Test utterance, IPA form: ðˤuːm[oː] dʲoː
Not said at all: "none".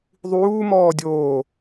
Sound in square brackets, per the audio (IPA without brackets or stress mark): ɔː